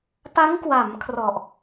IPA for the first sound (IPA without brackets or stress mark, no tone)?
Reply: p